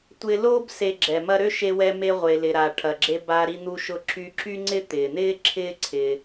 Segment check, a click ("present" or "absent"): present